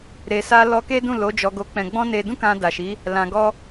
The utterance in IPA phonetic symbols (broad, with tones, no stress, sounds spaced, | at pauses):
ɾ e˨ s a˧ l ɔ˧ k e˦ d ũ˦˨ l o˨˦ d͡ʒ ɔ˧ ɡ o˧ k͡p ɛ̃˧ ɡ͡b ɔ̃˦ n e˧ d ũ˦ k ã˧ d a˨ ʃ i˨˦ | l ã˨ ɡ ɔ˧